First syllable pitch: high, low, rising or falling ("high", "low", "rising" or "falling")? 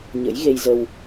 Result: rising